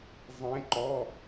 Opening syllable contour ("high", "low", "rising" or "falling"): rising